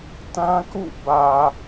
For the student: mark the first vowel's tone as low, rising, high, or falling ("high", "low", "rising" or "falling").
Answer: high